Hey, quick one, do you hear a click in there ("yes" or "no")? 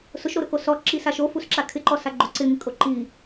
yes